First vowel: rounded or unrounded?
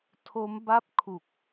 rounded